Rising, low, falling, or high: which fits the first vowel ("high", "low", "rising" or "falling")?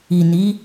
low